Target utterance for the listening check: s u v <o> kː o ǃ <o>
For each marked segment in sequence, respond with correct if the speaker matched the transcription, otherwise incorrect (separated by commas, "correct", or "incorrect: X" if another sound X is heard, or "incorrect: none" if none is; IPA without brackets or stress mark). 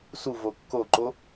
correct, correct